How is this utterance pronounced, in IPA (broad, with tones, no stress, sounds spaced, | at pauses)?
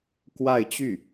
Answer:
k w a˥˧ ɪ̯ t͡ɕ y˥˩